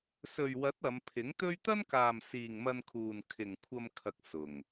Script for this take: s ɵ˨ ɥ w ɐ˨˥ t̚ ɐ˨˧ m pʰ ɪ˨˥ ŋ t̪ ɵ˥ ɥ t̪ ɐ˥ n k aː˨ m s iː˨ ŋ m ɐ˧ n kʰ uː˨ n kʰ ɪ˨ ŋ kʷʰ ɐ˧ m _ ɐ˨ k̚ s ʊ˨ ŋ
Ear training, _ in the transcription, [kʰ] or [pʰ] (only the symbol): kʰ